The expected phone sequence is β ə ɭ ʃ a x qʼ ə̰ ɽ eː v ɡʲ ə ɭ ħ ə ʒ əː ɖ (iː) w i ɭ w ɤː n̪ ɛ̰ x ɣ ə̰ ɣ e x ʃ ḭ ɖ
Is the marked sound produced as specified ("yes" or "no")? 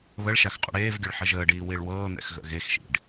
yes